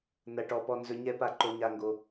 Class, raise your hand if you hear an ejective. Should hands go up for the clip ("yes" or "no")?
no